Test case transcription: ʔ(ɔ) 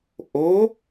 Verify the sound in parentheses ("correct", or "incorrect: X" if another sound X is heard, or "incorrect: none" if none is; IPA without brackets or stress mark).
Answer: incorrect: o